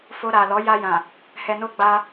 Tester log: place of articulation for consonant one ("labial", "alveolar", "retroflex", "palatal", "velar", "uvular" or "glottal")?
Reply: labial